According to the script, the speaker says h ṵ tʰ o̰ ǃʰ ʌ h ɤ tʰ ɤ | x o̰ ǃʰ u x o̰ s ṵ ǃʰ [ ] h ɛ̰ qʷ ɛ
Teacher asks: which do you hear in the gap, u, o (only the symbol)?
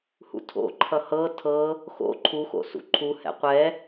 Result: u